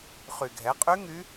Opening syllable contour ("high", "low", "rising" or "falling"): low